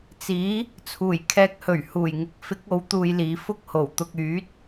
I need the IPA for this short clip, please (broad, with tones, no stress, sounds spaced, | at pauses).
t͡s iː˨˥ | t͡sʰ uː˨˩ j kʰ ɛː˧ k̚ h ɵ˨˩ ɥ h uː˨˩ j ŋ ɪ˨˥ k̚ f ɪ˨˥ k̚ o˨˥ w t̪ uː˧ j l iː˨˧ f ʊ˥ k̚ h o˨˩ w t̪ ʊ˧ k̚ yː˨˥ t̚